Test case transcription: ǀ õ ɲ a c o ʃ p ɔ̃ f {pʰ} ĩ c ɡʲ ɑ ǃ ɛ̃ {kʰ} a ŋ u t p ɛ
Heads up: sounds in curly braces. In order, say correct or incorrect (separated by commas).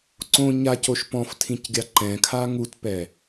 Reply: incorrect, correct